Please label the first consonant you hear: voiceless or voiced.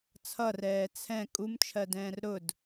voiceless